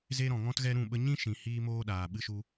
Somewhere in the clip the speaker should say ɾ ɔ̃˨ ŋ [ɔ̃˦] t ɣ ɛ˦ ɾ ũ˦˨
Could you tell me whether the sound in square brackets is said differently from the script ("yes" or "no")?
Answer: no